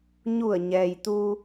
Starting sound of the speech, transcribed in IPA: ɲ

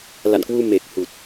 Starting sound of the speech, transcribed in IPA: l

